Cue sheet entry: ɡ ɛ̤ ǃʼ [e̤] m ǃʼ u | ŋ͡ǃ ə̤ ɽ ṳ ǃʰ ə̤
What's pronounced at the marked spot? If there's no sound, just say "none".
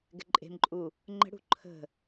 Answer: e̤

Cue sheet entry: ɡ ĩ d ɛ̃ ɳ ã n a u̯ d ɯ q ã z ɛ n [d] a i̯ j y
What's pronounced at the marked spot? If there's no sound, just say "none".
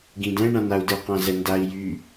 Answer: d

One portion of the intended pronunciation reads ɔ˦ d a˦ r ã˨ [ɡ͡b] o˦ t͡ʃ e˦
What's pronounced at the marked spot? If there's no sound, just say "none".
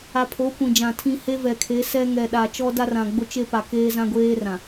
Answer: ɡ͡b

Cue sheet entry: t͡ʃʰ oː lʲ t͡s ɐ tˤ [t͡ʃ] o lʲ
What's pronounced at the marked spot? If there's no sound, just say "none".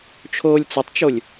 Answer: t͡ʃ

